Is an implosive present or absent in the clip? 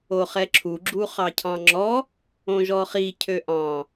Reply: absent